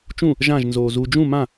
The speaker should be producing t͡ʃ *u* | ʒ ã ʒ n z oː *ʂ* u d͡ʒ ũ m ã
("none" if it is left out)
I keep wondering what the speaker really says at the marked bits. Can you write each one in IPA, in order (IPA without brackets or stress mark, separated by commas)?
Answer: ũ, z